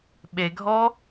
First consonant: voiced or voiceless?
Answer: voiced